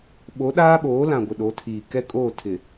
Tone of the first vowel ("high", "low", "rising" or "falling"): rising